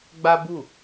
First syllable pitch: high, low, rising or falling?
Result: high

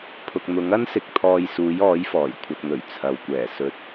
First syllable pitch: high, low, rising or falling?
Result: low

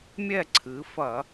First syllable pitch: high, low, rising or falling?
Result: falling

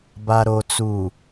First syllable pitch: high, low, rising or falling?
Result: low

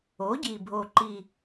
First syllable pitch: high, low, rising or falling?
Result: rising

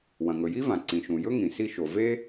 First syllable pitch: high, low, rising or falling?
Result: low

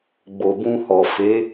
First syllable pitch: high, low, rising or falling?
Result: low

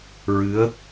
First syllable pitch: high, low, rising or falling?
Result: rising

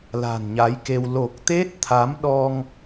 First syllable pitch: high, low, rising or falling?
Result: low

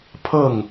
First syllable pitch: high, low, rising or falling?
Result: falling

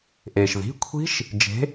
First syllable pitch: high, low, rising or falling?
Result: low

